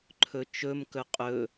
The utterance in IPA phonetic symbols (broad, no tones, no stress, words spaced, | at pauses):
ǃʰɵt͡ʃɵmkɵ qʼɵ